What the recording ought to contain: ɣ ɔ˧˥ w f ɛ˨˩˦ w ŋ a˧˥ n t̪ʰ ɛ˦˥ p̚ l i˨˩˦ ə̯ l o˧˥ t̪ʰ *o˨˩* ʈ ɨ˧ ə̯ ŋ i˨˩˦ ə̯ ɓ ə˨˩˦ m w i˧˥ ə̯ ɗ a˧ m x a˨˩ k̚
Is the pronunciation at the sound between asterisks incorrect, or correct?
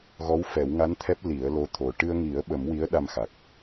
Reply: correct